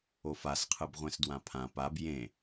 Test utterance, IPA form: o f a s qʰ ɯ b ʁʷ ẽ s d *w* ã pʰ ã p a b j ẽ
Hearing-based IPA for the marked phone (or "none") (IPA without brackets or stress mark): w